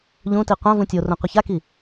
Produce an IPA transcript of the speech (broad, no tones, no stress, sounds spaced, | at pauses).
ʎ ũ t i qʷ ã v ũ tʲ o r ũ qʷ ɪ ç a k i